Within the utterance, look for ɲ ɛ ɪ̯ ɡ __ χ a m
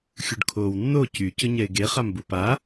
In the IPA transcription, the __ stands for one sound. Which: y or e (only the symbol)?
e